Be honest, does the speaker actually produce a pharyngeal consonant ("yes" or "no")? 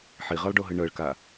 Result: yes